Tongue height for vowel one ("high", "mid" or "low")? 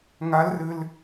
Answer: low